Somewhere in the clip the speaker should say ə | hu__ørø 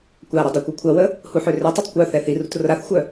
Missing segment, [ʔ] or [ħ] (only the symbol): ħ